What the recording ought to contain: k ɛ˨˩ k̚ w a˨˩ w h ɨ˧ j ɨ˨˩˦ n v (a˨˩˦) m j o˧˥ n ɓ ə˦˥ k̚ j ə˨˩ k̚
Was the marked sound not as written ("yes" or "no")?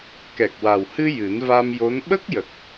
yes